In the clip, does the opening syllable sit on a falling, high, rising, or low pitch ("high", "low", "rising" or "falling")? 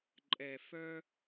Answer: low